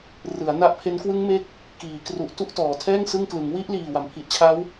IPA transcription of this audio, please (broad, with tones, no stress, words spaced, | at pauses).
rɯ˩˦a̯na˦˥ʔpʰe˦˥n kwɯ˦˥ŋme˦˥k̚ | kiː˩˦kru˨˩ʔ tu˥˩ʔtɔː˩˦ tʰɛː˥˩ŋ sɯ˥˩ŋklɯ˩˦ŋ wi˦˥ʔliː˨˩ wa˩˦mpʰi˨˩ʔt͡ɕʰa˦˥w